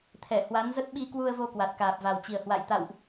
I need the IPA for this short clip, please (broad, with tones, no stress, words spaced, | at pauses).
t̪ʰɛ˧˩ hwa˨˦nzə˦˥t̚ ɓi˧kwu˧ə̯vo˧ kwa˨˩t̚kaː˨˩p̚va˨˩wt͡ɕi˨˩ə̯ hwa̰˧˨jt̪a̰˧˨wʔ